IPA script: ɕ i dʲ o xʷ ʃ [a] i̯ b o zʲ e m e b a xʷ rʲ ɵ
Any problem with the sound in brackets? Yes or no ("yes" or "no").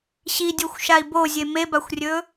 no